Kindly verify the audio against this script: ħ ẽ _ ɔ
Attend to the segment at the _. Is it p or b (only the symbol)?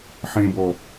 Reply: b